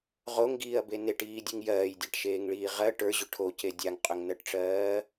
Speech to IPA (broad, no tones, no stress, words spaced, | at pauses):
ʁoŋɡiːɐ̯be neʈiːdʲɨŋ jɜːjdʲaʈʃeːŋɭiː ʁɜ ʈə˞ʑʏ ʈʰoce dʲaŋqʼʏŋnɜʈʈ͡ʂɜː